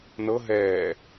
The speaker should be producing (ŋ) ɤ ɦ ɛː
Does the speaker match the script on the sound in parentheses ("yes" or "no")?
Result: no